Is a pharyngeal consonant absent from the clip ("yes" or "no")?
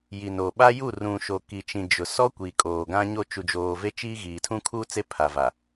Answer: yes